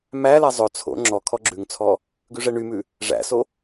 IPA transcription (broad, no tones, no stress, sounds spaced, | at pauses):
m æ l æ zˤ ɵ t͡sʰ o̰ ŋ͡ǁ ɔ kʰ ɔ ɡ͡ǁ ʉ ŋ t͡sʰ ɔ | ɡ ʉ ʐ ɛ ɳ y m ʉ | ʐ æ̰ s o